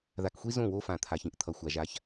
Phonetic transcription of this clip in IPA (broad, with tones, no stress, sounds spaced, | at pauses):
ð a˨ k xʷ i˦ z õ˦˨ w o˦ f ã˨ t̪ʰ a˨ ç ĩ˨ ʔ t̪ʰ ʌ˨ xʷ a˨ ʒ a˦ ç